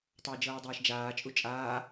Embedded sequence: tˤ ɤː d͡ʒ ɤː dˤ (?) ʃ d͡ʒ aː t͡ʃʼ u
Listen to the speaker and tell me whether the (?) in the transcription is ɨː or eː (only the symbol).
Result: eː